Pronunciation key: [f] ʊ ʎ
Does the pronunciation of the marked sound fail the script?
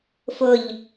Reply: no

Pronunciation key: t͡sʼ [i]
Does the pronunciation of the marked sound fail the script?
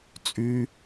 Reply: yes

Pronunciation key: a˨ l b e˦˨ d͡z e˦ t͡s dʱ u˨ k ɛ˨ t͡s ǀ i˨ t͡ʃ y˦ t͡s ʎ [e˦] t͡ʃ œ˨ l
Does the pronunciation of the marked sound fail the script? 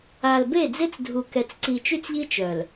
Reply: yes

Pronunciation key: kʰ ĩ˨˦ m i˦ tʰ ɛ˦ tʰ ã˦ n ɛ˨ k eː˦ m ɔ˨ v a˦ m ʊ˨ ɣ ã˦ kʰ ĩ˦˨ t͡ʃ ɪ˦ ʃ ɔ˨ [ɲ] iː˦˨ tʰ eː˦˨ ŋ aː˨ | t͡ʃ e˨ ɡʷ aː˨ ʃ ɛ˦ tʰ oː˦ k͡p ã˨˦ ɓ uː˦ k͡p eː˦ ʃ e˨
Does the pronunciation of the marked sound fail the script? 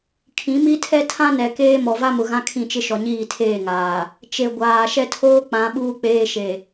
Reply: no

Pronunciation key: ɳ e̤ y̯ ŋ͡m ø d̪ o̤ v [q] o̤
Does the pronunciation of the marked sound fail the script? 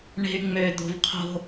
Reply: yes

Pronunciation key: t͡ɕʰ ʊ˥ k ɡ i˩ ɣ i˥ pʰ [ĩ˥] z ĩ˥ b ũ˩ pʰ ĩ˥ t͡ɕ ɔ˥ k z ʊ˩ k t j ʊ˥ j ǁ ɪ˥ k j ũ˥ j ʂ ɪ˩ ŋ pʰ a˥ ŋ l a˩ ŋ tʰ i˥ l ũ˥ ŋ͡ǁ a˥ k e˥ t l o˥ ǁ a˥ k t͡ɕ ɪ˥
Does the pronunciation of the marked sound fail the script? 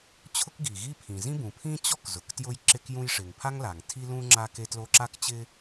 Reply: yes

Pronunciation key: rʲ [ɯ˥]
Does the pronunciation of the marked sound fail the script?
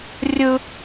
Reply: no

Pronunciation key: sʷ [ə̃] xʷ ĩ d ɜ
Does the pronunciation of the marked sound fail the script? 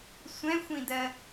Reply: yes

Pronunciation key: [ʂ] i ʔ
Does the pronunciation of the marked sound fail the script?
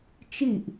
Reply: yes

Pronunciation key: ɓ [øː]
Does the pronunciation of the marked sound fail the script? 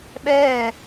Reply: yes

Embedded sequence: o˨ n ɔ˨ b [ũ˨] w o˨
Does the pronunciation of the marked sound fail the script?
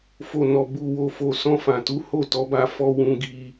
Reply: yes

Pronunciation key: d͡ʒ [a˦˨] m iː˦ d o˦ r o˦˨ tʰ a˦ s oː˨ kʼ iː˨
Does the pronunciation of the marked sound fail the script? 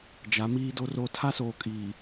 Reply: yes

